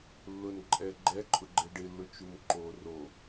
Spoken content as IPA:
lː ʊ n ǃʼ ɛ ɡ͡ǃ ɛ ǃʼ ʊ ɡ͡ǃ ɪ ɖ ɪ lː ʊ t͡ʃ u m ǃ o r o

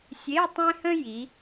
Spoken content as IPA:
sʲ e˧˥˧ tˤ ẽ˥ h ə̃˥ j i˩˧

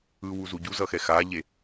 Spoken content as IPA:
ɯ w u z u ɟ u z ʌ x ɛ x a ʎ e

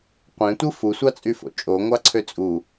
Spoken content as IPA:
qʷ ẽ tʷ ɯ f u sʷ ɑ t͡sʼ y f o̰ t͡ʃʼ o ŋʷ ɑ ǀʰ ø t͡sʼ u

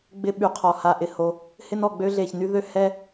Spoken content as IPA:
ɡ͡b ɪ˧ ɓ y˩ qʰ ɔ˩ h a˩ ʔ ɪ˩ h o˩ | h ɪ˧ n ɔ˩ ɡ͡b ø˧ ɮ e˩ ç n y˧ ð ø˧ h ɛ˧

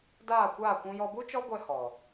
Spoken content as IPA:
d aː˦˨ kʷ aː˦˨ kʷ ũ˧ j ɔ˧ b u˦ t͡ʃ ɔ˦ ɡʷ ɛ˧ h ɔ˨

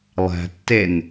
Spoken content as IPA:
lˠ æ̤ tː e n

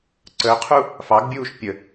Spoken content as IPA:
ǀ əː qʰ u | f ɑ ɡ bʲ uː ʃ pʲ ə

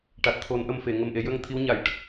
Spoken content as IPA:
ʈ a˨˩ t̚ t̪ʰ o˨˩˦ n ʔ ə˨˩ m f e˨˩˨ ŋ ə˨˩ m ʔ e˨˩˦ j ə˧ ŋ t̪ʰ i˧˥ w ɲ a˨˩˨ j ʈ ə˦˥ k̚

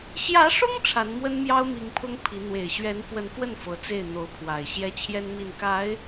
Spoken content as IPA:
ɕ j ä˧˥ ʂ ʊ˥ ŋ ʈ͡ʂʰ a˧˥ n m w ə˥ n m j ɑ˥ ʊ̯ m i˧˥ ŋ pʰ ʊ˥ ŋ pʰ i˧˥ n̪ w e˨˩ ɪ̯ ɕ ɥ ɛ˧˥ n f w ə˧˥ n f w ə˥˩ n f ɤ˧˥ t͡s e˥˩ ɪ̯ n̪ o˧˥ ʊ̯ pʰ w a˨˩ ɪ̯ ɕ j ɛ˥ t͡ɕʰ j ɛ˥ n m i˥˩ n k a˧˥ ɪ̯

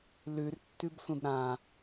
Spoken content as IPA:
l ʉ r tː ʉ b sʷ ẽ b ɾ ã

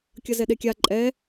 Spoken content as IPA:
kʲ ʌ z ɛ ɗ e kʲ a ǃʼ ɛ

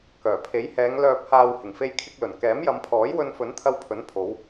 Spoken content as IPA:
k œː˨˩ pʰ e˨˥ j h ɛː˨˧ ŋ l œː˨ p̚ h aː˨ w h ɪ˨˩ ŋ f e˧ j kʰ ɪ˧ k̚ l ɵ˨˩ n k ɛː˨˥ m j ɐ˨˧ m pʰ ɔː˨˥ j w ɵ˧ n f ɵ˨˥ n t̪ʰ ɐ˧ w pʰ ɵ˨˥ n pʰ o˨˧ w

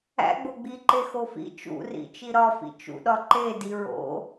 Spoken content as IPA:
æ̰ ɡ͡b o ɡ͡b i ǃ e x o f ḭ t͡ʃ ṵ r ḭ t͡ʃ i ɾ ɒ f ḭ t͡ʃ ṵ ɗ ɒ ǃ e d i ɹ o̰

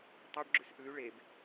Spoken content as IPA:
tˤ o ɖ ɡ͡ǁ ʉ s ʔ ʉ y̯ ɭ e b

